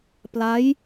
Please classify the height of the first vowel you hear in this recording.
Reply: low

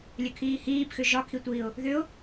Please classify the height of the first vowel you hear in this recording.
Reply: mid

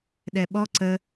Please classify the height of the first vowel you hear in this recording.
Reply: mid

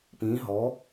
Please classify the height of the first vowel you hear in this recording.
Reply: high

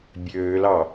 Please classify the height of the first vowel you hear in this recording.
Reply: mid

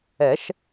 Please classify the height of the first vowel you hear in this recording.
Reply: mid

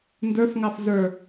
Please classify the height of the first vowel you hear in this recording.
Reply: mid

